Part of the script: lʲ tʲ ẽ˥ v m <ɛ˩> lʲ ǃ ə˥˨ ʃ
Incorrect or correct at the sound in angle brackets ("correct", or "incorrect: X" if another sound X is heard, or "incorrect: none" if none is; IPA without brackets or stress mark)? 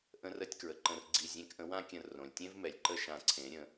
correct